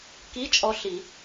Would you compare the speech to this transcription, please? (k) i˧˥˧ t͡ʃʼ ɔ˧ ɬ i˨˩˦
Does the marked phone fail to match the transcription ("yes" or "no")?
no